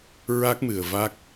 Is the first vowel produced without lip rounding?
yes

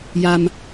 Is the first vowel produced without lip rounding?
yes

